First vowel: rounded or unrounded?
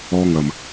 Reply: rounded